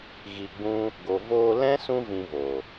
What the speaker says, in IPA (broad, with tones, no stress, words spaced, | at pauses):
ɣi˧ɡ͡bũ˦ | ɡo˨voː˧lɛ̃˦ sũ˦vĩ˧voː˨